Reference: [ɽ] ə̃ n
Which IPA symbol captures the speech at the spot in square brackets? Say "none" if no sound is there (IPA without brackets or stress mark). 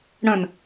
ɽ